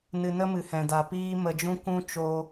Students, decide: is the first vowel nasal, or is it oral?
oral